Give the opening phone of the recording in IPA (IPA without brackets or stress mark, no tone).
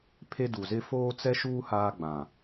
pʰ